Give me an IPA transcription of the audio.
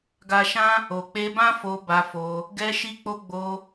ɡa˧ʃã˦ | o˨k͡pe˧bã˦fo˧ ba˧fo˧ | ɡɛ˧ʃi˧k͡po˧ ɡ͡bo˧

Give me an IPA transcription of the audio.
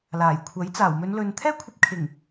laː˨˩jkʷʰɐ˨˥j t͡saː˨˩wmɵ˨˧nlɵ˨n t̪ʰɛː˥kʷʰɐ˧p̚kʰɪ˨˩ŋ

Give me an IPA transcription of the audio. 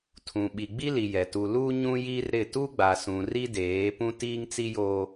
tʰũ˨ɓi˨ɡ͡bi˦li˨ jɛ˨ tu˨ lu˦ɲũ˦ji˦rɾɪ˦˨ tu˦ɡ͡ba˨sũ˨ ri˦deː˨˦ pũ˦tiː˦ŋt͡si˦joː˦

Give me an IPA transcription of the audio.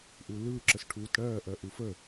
ʔulɯː ǁəsʈʰuːtɽɜː ʔɜʔufə

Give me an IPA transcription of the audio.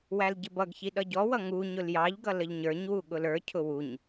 wælɟɪbʌɡçi ɗʌɟɔwʌ ŋu ɲʊljɑʎɡʌ ləʎɲə˞ɲwu ɠʊlə˞cʰʊ wuɲ

